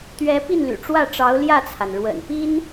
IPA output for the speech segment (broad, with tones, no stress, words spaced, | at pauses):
t̪ɥɛ˧˥ pi˥˩nly̰˨˩ʈ͡ʂwä˥˩ʈ͡ʂɑ˧˥ʊ̯ ljä˥˩t͡sʰa˩n ɻwə̰˨˩npi˥n